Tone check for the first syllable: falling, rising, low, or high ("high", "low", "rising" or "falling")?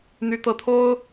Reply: rising